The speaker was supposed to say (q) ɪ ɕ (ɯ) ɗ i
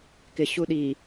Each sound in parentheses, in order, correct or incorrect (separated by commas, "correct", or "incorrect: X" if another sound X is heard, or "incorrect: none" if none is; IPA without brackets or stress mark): incorrect: k, incorrect: u